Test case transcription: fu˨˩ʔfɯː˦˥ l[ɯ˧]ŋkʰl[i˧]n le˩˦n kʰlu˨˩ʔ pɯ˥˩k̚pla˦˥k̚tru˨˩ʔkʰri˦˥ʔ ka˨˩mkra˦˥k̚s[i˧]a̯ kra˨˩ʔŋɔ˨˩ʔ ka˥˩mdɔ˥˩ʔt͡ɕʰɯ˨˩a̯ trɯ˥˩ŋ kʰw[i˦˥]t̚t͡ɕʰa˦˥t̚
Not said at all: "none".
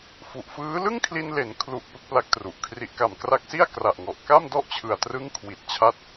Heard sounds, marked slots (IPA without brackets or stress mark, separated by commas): ɯ˥˩, i˧, i˥˩, i˨˩